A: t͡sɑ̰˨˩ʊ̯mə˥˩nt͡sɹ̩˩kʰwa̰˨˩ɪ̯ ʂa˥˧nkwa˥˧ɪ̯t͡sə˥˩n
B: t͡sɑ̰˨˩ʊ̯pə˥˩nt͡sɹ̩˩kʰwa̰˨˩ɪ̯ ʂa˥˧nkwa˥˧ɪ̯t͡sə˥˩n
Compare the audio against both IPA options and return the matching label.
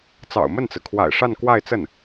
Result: A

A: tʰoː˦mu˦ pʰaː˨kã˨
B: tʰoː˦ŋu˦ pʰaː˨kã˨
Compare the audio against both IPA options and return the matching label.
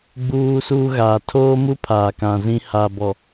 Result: A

